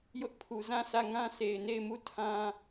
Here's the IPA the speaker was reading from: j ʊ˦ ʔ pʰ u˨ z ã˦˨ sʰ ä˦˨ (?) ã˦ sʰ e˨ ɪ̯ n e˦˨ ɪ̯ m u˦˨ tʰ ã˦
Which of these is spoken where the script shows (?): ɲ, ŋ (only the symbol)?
ŋ